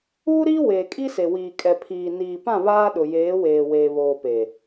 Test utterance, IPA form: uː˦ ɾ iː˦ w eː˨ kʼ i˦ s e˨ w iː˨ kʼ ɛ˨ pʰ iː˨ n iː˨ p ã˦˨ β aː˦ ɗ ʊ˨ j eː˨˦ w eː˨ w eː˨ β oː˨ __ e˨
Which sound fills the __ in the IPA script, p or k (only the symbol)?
p